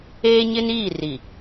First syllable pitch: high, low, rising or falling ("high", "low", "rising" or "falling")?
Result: high